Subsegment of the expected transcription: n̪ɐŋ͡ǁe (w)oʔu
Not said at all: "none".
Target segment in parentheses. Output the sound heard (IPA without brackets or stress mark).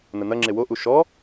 w